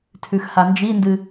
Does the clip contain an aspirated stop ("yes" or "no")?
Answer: yes